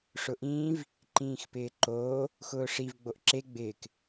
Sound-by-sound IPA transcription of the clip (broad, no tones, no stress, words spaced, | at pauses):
ʂʊʔĩːv | ǃĩːxpɪːǃoː | xʊːʂiv ɡ͡boʔǁe ɡ͡bɪːk